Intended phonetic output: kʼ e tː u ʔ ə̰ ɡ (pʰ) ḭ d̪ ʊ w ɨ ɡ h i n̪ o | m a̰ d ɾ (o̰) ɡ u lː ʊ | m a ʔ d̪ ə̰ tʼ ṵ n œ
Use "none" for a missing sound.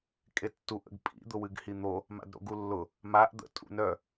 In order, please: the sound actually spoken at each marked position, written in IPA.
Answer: pʼ, o̰

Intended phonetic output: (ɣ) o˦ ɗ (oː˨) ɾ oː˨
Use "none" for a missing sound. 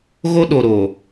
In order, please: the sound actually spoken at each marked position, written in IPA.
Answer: ɣ, o˨

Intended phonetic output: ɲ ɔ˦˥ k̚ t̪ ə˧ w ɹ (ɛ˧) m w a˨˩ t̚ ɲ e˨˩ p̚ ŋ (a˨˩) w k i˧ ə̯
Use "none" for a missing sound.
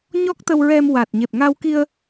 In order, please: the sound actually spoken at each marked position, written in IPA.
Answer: ɛ˧, a˧

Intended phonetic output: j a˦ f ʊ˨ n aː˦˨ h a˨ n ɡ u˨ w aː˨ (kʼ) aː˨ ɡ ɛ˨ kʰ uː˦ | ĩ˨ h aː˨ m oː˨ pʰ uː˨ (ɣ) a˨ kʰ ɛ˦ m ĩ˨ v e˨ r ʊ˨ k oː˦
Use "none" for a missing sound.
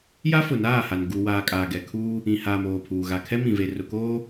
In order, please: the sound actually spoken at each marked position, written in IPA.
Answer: kʼ, ɣ

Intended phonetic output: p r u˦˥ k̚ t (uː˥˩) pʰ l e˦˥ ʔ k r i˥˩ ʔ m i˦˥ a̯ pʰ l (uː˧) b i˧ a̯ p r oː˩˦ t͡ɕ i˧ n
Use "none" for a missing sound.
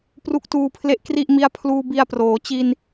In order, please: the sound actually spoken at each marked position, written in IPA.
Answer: uː˧, uː˧

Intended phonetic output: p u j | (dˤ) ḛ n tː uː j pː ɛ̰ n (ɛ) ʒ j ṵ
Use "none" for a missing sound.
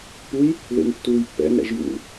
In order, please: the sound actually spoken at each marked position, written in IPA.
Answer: ð, ɛ̰

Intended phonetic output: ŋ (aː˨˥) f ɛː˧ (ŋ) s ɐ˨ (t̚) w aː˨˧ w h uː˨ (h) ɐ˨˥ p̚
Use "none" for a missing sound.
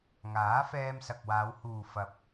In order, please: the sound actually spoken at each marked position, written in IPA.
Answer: aː˨˥, m, k̚, f

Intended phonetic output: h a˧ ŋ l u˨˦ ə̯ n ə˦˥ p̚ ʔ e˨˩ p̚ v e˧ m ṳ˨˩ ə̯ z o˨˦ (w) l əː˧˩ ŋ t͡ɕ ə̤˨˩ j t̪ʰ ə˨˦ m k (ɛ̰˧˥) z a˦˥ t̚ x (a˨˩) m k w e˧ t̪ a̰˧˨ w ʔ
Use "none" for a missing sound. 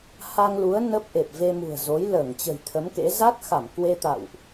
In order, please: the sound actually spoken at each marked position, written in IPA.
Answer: j, ḛ˧˥, a˧˩

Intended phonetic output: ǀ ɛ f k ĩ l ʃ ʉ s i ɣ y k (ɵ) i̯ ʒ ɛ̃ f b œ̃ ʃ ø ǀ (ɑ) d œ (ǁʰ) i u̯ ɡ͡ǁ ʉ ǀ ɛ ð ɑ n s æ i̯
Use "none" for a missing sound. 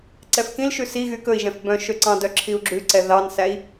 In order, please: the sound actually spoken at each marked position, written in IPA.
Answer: ɵ, ɑ̃, ǁʰ

